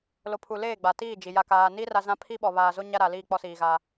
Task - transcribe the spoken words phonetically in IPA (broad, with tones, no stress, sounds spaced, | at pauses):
l o˨ pʰ u˨ l eː˦˨ ɡ͡b a˨ t iː˦˨ d͡ʒ i˨ j a˨ k aː˨ n i˦ r a˦ z ã˦ pʰ i˦ ɓ ɔ˨ β aː˨ z o˦ ɲ a˦ ɾ a˨ l iː˦˨ k͡p ɔ˦ s iː˨ ɣ aː˦